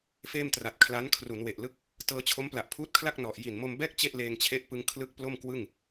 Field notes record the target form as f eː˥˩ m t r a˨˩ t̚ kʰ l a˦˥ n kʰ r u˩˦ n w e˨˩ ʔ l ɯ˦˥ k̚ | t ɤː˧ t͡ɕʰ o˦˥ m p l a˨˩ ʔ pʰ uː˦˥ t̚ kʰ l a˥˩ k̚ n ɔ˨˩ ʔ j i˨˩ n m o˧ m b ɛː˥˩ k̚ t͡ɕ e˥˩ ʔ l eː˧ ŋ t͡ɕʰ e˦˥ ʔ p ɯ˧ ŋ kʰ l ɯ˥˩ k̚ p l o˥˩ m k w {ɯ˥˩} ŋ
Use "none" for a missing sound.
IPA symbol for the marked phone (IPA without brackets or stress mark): ɯ˥˩